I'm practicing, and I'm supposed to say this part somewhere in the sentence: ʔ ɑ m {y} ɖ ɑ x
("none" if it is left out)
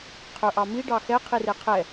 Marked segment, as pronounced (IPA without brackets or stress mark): i